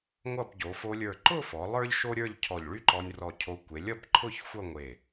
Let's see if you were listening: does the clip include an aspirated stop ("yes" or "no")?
yes